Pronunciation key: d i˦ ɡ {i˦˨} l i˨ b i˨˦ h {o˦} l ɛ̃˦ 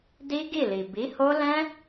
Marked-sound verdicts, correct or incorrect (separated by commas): correct, correct